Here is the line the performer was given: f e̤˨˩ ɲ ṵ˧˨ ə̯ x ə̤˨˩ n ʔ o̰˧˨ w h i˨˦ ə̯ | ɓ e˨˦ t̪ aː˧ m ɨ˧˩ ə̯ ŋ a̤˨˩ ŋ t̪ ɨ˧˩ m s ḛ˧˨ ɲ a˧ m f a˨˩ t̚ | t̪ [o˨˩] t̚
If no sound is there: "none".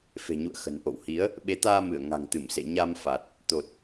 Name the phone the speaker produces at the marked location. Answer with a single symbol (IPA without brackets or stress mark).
o˨˩